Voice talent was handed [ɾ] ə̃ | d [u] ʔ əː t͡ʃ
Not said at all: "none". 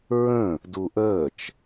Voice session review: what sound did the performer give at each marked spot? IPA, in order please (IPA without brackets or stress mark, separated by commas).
ɹ, u